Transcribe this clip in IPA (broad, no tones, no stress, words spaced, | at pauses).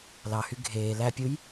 lɑhy ɡʱeː læpʲuj